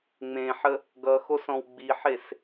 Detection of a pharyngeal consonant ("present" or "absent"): present